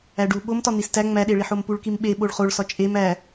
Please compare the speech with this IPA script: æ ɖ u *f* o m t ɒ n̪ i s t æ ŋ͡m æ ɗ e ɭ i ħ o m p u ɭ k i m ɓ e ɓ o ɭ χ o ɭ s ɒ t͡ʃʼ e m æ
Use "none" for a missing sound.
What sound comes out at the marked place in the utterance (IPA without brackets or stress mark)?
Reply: ɓ